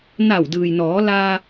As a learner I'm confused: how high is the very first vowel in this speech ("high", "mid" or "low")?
low